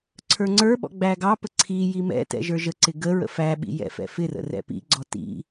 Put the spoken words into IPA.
ǀʰ ə˞ ŋ͡ǀ ə˞ ɓ ɔ̰ ɡ͡b æ ɡ ɑ p ə ǀʰ i j i m ɛ̰ t ɛ̰ ʒ ə˞ ʒ ə ǀ ɪ ɡ ə ɹ ə̰ f æ ɓ ḭ j ɛ̰ f ɛ̰ f ɪ r ə̰ r ɛ̰ p ḭ ɡ͡ǀ ɔ t ḭ

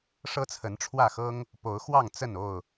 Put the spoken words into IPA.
ʂ ɤ˦ t͡sʰ ə˨˦ n ʈ͡ʂʰ w ä˥˨ x ɤ˦ ŋ | p o˨˦ ʊ̯ x w ɑ˥˨ ŋ t͡s ə˥˨ n o˥˨ ʊ̯

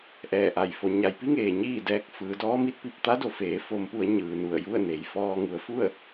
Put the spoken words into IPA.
ʔ ɛː˧˩ ʔ a˧˩ j f o˩˧ ɲ a˩˧ j p i˧˥ ŋ eː˩ ɲ iː˥˨ d ɛː˧ k̚ f ɯː˩˧ d ɔː˧˥ m i˧˥ t̚ p i˧ p̚ t̪ a˧˥ d o˩˧ f eː˩˧ f o˩˧ m p u˩˧ ə̯ ɲ ɯː˩ n u˧˩ ə̯ j u˥˨ ə̯ n e˩ j f ɔː˧ ŋ u˩˧ ə̯ f u˥˨ ə̯

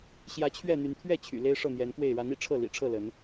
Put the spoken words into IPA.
ɕ j ä˨˦ t͡ɕʰ ɥ ɛ˥˨ n̪ y˨˦ n t̪ʰ ɥ ɛ˥˨ t͡ɕʰ y̰˨˩ l e˦ ɪ̯ ʂ ɤ˥˨ n̪ j ɛ˨˦ n k w e˥˨ ɪ̯ ɻ a˨˦ n ḭ˨˩ ʈ͡ʂʰ ɤ˥˨ l ḭ˨˩ ʈ͡ʂʰ ɤ˥˨ l ə˨˦ n

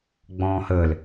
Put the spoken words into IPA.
ɡ͡b ɔ̃ː h əː l

